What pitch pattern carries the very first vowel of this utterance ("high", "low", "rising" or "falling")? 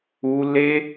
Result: high